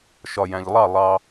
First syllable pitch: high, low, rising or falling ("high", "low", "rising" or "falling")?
low